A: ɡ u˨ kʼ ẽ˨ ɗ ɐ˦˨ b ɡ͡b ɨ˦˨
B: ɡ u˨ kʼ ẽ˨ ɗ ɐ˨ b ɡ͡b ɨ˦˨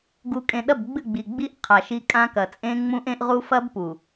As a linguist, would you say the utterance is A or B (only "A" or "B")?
A